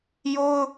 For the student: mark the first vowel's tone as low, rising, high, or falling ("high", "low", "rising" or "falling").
high